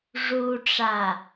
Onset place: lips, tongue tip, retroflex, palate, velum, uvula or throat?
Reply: retroflex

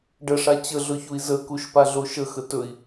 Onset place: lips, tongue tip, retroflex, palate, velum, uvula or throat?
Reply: retroflex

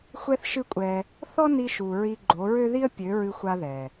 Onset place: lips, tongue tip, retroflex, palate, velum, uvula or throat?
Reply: velum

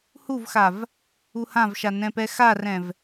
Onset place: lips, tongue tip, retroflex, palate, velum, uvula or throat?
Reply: throat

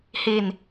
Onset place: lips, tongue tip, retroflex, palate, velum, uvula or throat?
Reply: throat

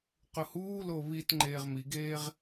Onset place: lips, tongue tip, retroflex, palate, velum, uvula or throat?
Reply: uvula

